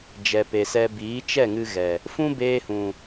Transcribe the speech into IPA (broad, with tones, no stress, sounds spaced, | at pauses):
d͡ʒ ɛ˨ p e˨ s ɛ˧ b iː˨˦ t͡ʃ ɛ˦˨ ŋ ɨ˧ ɣ ɛ˨ | f ũ˦ b eː˧ h ũ˨